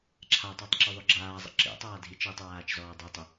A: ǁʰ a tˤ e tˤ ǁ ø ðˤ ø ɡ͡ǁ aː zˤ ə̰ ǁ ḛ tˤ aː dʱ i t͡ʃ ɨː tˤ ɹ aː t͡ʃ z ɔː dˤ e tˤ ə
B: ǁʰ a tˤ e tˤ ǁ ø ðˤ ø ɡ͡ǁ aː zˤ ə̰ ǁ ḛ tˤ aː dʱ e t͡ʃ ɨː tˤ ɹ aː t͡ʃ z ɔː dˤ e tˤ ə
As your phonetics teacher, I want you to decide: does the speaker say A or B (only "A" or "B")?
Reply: A